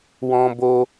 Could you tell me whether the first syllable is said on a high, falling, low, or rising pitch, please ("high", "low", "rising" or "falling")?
high